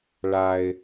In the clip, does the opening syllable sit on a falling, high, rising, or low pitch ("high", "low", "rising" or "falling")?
low